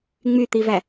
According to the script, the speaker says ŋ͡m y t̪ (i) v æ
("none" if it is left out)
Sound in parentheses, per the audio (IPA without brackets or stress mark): i